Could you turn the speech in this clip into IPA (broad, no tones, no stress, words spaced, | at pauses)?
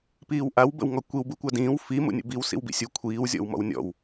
piːwʔaw bə̰wŋɔkʷiw bukʷadĩːw fi mṵnʲə̰biw sḭwbḭsʲu kʷʰiːw zʲɔ̰wmɔ̰wnʲɔ̰w